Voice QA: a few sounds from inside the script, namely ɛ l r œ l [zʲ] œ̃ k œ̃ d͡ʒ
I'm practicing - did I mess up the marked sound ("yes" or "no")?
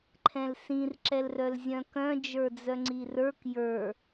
no